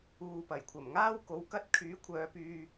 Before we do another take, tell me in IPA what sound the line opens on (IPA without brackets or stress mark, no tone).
uː